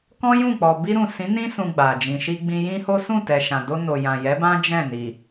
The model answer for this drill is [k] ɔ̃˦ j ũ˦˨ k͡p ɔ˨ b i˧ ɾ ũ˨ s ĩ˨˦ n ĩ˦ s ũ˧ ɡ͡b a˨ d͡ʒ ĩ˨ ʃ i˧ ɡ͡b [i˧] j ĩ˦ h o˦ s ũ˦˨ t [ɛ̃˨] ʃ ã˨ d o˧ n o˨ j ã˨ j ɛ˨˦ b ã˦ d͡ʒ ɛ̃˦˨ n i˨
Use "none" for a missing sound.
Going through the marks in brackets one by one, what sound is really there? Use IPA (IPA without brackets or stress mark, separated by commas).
k, ĩ˧, ɛ˨